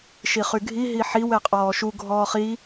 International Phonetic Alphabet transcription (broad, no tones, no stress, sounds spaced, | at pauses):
ʃ i χ y ɡʱ i ɦ i ħ i w ɛ qʼ ɔː ʃ u ɡʱ ɔː χ i